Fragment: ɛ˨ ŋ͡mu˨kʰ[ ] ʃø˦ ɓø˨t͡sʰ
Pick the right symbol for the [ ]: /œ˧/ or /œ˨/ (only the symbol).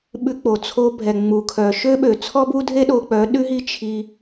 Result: œ˨